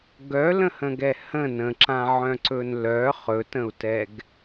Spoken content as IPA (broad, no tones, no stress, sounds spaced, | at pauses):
ɡ œ l ə̃ h ə̃ ɡ ɛ h ə̃ n ə̃ ǁ ã ʕ œ̃ ǀ ɵ n l œ χ ɵ t ə̃ u̯ t ɛ ɡ